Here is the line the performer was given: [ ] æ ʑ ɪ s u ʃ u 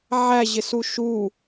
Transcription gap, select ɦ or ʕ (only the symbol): ʕ